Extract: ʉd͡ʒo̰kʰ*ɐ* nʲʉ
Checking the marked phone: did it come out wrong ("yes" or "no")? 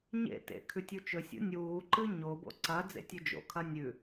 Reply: no